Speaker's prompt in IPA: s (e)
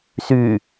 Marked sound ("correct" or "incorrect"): incorrect